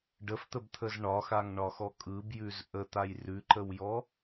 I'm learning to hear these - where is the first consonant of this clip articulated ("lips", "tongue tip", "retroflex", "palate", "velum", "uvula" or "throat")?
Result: retroflex